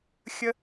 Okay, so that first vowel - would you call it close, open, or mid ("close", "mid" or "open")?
mid